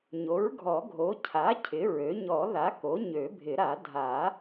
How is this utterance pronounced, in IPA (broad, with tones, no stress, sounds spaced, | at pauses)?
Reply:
ɲ o˩˥ ɹ ɡʱ ɔ˨˩˦ ɡʱ o˩˥ cʰ a˩˥ cʰ ɪ˩˥ ɹ ø˩˥ ɲ ɔ˨˩˦ ð a˩˥ k o˩˥ ɲ ø˨˩˦ bʱ ɪ˨˩˦ ɾ a˨˩˦ dʱ a˨˩˦